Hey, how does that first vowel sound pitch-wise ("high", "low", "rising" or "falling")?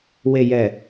low